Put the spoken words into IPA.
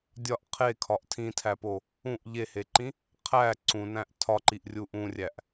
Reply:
dʲ ɒ ʔ qʰ e kʰ ɒ ʔ tʰ ĩ tʰ æ p o | ũ ʔ ʎ e h e ǃ ĩ | qʰ æ ǀ ũ n æ̃ ʔ tʰ ɒ ǃ i ʔ rʲ u ʔ ũ rʲ æ ʔ

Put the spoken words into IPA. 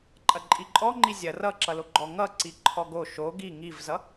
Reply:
ǃʼ ɐ ǃʼ i ǃʼ ɔ ŋ͡ǃ i zʲ ɐ r ʌ ǁ ʌ l o ɡ͡ǃ ɔ ŋ ʌ ǀ i ǃʰ ɔ ɡ o ʃ o ɡ i ŋ i v z ʌ

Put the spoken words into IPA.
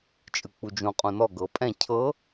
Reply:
t͡ʃʼ ɯ k͡p u d͡ʒ ũ qʼ ũ n ɔ ɡ ɤ pʼ ɛ̃ cʰ ɤ

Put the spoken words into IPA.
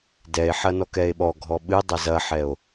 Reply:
d ɛ e̯ ħ ɐ n ɔ k ɛ e̯ ɓ ɔ ɡʱ ɔ ɓ ɨ dˤ a z ɐ ħ ɛ o̯

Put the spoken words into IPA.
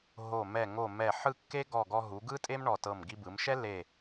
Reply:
ɦ o˧˩ m ɛ˧˩ ŋ o˧˩ m ɛ˧˩ ħ ɯ˥˧ kː e˥ ɡ ɔ˧˩ ɡ ɔ˧ ɦ u˩˧ ɡ ɯ˥ tʼ e˥ m ɳ ɔ˧˩ t ɤ˧˩ m ɡ i˧ b ɯ˩˧ m ʃ ɛ˥ l e˧˩

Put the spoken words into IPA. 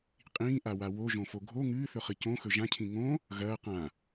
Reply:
qʼ ĩː ʔ a w a w o ʒ õ f o ɡʱ o ŋ ɨː θ ɵ χ ɨ c õ x ɵ ʒ ã cʰ ĩ ŋ õ | ɣ ɐː q ã

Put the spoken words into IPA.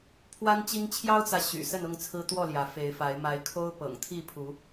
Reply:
pʰ w a˦ n t͡ɕ i˦ ŋ t͡ɕʰ j ɑ˦ ʊ̯ t͡s ä˨ ɕ y̰˨˩ s ə˥˨ n ʊ˥˨ ŋ t͡sʰ ɹ̩˦ t̪ w ɔ˥˨ l j ä˨˦ f e˨˦ ɪ̯ f a˨˦ ɪ̯ m a˨˦ ɪ̯ kʰ o˦ ʊ̯ p ɤ̰˨˩ ŋ t̪ʰ i˥˨ pʰ u˨˦

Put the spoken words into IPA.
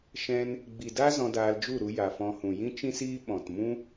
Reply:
ʃ ɛ̃˦ n | ɡ͡b i˨ d a˦ z ɔ̃˧ d aː˧ l d͡ʒ u˦˨ ɾ u˧ j a˨ f ɔ̃˧ h ũ˨ j ĩ˦ t͡ʃ ĩ˦ s iː˦ ɓ ɔ̃˨ t m ũ˦

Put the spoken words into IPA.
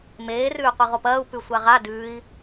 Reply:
m eː r ʉː qʷ ɨ ʁ o p ɐː u̯ p ʉ sʷ a ʁ a d ʉː i̯

